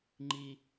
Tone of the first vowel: high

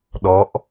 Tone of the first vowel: rising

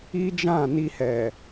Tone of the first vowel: high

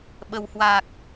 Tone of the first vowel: low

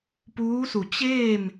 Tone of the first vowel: rising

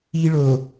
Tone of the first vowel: high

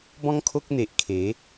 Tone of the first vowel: high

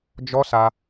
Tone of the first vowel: high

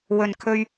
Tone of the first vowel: low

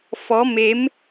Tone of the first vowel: rising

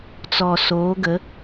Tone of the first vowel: low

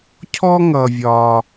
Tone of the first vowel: high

